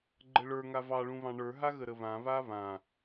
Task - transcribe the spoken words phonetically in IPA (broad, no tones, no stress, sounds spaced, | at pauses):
ɡ͡ǃ ə ɭ ə˞ ŋ a v ɑ ɭ ũ β ɑ̃ ɳ ə˞ ɦ a ɣ ə ɾ ə β ã β a β ã